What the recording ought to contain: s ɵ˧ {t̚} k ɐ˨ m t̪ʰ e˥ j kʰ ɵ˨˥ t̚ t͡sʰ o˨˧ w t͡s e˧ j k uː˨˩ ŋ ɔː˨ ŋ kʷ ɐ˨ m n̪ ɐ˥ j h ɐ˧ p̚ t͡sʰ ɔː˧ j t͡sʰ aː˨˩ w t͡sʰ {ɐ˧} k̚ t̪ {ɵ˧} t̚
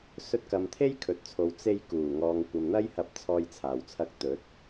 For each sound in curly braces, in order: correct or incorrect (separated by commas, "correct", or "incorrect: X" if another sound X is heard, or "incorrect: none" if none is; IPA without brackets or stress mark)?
correct, correct, incorrect: ɵ˨˥